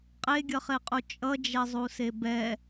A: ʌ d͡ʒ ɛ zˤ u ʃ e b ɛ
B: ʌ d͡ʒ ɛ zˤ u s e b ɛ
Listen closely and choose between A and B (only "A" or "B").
B